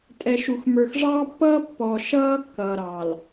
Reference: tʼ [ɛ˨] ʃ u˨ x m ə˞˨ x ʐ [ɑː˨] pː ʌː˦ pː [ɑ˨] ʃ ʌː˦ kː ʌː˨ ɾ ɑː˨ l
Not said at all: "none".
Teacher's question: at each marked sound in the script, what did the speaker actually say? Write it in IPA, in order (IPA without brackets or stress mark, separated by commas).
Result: ɛ˨, ɑː˦, ɔ˨